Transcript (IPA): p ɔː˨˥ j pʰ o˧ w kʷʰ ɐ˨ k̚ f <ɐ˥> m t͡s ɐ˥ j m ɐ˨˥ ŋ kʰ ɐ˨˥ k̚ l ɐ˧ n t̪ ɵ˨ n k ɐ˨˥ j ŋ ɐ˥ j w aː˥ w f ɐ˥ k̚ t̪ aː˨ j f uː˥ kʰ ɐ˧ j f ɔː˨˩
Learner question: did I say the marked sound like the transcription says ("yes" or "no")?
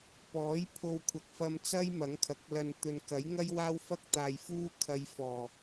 no